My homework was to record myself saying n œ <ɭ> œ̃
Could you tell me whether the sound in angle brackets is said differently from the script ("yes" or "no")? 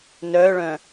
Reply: no